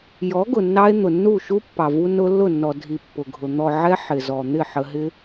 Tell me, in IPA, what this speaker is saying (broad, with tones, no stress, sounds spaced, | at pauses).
j ɔ˨˦ ɡ ʊ˨ nː ɑ˧ e̯ n̪ ʊ˨ nː u˦˨ ʃ u˦ pː ɑ˨ v u˧ n ʊ˧ lː ʊ˦˨ nː ɔ˨ dʱ i˨ pː ʊ˨ ɡʱ ʊ˨ n̪ ɔ˨ ʕ ɛ˧ ħ ɪ˨ z ɔ˨ n̪ ɪ˦˨ ħ ə˨ ɦ ɪ˧